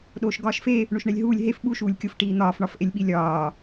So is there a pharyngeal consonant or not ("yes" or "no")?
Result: no